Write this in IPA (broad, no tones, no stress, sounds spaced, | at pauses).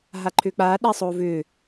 ɦ a ǃʰ ʏː k͡p aː ɗ a sˤ oː v ʏː